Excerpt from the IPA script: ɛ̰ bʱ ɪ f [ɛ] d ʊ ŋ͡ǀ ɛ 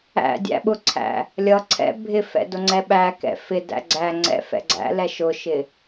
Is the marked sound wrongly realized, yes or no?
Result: yes